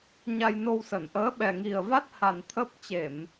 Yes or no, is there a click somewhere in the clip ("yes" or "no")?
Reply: no